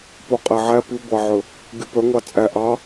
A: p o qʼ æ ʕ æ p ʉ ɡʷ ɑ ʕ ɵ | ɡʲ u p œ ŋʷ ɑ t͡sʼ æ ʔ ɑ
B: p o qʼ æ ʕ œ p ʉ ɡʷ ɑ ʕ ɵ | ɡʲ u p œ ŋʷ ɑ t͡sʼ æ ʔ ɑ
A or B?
A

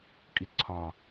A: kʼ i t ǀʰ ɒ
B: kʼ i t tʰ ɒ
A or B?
A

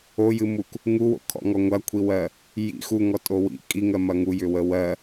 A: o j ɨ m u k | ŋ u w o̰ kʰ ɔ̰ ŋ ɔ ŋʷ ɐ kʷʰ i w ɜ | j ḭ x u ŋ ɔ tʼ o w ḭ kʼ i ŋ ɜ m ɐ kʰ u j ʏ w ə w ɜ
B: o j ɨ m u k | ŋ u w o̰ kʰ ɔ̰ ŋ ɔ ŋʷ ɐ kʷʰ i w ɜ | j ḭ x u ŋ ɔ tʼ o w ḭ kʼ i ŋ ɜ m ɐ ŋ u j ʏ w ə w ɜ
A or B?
B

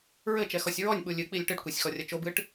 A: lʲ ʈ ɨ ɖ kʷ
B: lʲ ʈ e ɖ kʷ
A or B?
A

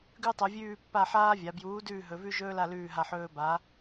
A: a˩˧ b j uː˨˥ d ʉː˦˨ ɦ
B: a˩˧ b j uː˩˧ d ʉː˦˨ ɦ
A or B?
A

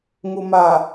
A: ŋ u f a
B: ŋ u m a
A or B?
B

